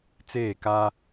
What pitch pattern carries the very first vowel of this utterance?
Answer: falling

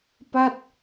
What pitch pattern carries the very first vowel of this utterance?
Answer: falling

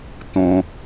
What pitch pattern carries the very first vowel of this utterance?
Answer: low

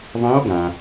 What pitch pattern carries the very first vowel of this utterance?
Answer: rising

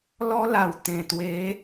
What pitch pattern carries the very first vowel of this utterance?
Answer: high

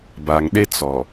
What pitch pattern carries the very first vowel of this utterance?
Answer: low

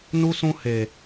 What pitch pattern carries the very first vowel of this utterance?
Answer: high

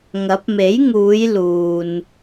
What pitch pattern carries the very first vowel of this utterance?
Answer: rising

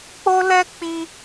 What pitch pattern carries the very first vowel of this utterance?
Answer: high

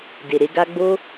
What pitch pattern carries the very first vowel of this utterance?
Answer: low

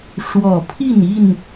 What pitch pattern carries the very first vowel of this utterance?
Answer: low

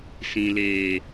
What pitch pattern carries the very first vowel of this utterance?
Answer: low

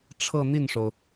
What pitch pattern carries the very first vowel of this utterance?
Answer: falling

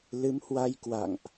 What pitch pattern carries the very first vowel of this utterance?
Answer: rising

